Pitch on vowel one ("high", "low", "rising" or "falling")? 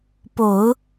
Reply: low